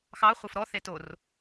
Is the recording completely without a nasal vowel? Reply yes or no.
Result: yes